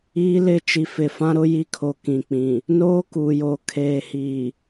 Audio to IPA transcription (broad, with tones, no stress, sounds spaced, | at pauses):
iː˦ l ɪ˦ t͡ʃ i˨ f ɪ˨ f ã˦ ɾ ʊ˦ j i˦ kʰ o˨ k ĩ˨ k͡p ĩ˨ | n oː˦ k uː˨ j oː˨ kʰ eː˨ h iː˨